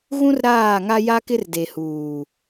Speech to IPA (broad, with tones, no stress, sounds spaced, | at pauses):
ɣ ũ˦ r ɾ aː˦˨ ŋ a˦ j a˦ k ɪ˦ r d e˨ h uː˨